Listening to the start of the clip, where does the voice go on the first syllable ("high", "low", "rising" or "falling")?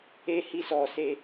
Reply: high